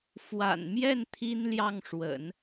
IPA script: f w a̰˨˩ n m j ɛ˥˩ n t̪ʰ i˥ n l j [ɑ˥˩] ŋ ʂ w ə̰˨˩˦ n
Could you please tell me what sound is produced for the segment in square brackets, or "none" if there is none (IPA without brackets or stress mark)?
ɑ˥˩